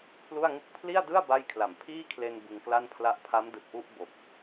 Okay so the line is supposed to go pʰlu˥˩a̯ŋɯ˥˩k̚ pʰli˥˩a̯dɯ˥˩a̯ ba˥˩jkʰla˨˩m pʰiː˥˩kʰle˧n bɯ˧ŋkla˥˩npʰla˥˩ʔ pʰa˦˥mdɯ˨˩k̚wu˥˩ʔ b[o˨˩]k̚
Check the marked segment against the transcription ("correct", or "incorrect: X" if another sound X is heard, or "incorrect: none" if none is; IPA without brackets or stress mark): correct